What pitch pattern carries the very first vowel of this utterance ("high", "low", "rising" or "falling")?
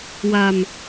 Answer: low